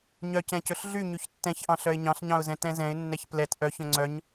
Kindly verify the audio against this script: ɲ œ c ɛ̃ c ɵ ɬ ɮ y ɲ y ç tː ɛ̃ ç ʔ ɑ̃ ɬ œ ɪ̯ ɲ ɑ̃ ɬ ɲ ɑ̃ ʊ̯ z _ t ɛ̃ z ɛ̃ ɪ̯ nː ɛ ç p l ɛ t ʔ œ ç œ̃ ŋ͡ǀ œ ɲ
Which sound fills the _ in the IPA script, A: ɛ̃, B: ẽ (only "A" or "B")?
A